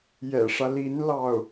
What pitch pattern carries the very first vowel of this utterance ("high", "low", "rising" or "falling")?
low